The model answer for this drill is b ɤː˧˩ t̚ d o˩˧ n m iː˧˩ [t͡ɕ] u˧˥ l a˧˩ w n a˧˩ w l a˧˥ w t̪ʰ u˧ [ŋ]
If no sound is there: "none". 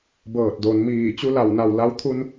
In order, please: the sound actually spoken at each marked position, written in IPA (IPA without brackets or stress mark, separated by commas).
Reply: t͡ɕ, n